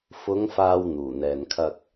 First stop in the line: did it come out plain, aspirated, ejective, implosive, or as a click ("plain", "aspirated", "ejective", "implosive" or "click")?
aspirated